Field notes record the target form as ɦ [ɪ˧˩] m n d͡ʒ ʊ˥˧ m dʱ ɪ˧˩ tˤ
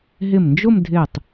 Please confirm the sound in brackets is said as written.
yes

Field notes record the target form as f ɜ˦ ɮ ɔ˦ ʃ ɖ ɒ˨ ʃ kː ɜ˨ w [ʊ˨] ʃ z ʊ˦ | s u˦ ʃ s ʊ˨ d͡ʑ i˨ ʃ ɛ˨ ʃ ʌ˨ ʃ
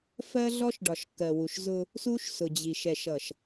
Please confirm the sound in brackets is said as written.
no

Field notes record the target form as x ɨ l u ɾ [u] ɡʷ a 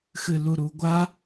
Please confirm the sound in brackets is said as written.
yes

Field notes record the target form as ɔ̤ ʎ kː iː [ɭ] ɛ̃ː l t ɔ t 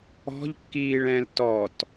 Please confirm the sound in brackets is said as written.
yes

